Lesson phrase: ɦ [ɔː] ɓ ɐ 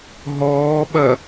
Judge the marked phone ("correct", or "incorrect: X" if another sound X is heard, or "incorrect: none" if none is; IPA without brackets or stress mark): correct